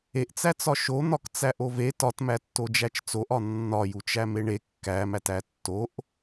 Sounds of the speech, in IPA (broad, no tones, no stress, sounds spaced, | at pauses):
e ʔ t͡s æ t͡s ɒ ʃ o n̪ ɒ k t͡s æ ʔ o v e t ɒ t m æ tː o d͡ʒ æ t͡ʃ t͡s o ʔ ɒ nː ɒ j u t͡ʃ æ m e ɳ e kː æ m æ t æ tː o ʔ